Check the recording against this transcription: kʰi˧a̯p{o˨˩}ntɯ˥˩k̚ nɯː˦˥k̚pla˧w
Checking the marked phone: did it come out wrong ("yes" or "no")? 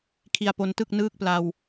yes